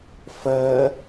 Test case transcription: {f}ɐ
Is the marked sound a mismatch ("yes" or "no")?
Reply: no